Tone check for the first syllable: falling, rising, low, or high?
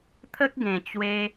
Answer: high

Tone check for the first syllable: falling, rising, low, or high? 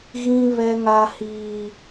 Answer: high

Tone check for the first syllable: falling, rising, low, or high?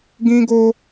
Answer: high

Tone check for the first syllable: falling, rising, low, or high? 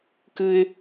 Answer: high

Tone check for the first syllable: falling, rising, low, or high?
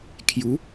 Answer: rising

